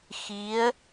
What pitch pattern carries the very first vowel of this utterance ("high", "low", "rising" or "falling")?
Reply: rising